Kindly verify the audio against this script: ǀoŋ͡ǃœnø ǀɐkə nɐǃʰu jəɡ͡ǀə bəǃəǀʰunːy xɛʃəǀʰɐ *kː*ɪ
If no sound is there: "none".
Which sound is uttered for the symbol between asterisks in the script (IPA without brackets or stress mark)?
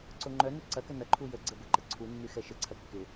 kː